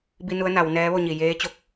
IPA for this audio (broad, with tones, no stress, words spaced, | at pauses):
bi˧ nu˧˥ə̯ na˩˧w nɛː˧˥ʋo˥˨ɲi˧˩ jeː˧˥t͡ɕo˧˥k̚